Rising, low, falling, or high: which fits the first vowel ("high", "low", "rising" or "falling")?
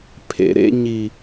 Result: low